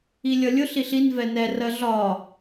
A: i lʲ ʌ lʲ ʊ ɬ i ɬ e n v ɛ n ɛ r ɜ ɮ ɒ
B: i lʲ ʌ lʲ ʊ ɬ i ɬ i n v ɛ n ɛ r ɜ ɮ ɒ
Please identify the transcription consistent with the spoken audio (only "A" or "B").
B